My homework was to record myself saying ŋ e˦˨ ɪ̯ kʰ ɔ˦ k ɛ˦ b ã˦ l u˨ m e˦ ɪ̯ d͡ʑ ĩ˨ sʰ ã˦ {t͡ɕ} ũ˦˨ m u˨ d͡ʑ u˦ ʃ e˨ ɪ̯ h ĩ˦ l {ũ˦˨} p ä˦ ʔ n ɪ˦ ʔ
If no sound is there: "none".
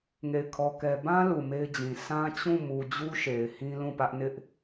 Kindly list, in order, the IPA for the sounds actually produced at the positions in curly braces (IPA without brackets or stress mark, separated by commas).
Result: t͡ɕ, ũ˦˨